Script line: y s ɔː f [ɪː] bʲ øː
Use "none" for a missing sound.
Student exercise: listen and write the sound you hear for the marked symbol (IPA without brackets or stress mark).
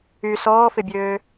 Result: ɪ